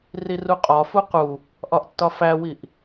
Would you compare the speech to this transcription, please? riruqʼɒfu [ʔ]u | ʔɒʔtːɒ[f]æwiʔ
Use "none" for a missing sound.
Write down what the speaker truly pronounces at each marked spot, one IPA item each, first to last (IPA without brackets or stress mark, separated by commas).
q, f